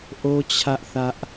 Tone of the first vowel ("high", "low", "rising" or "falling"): high